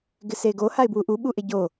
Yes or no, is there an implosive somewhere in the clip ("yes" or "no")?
yes